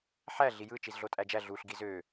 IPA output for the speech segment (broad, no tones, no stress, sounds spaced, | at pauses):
ħ æ ɮ i j ɯ t͡ʃ i z ɮ o tʼ æ d͡ʒ æ ɮ u ɬ ɡ i z ø